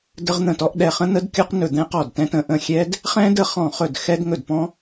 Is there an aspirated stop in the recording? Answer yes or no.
no